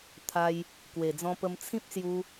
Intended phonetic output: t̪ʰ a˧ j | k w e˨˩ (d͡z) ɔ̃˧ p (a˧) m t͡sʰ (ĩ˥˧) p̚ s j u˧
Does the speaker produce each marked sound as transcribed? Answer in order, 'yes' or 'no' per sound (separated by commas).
yes, no, no